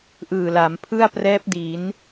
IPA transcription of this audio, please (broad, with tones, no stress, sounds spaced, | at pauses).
ʔ ɯː˨˩ l a˩˦ m pʰ ɯ˥˩ a̯ p r ɛː˦˥ p̚ d i˩˦ n